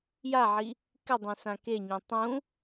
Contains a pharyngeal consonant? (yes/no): yes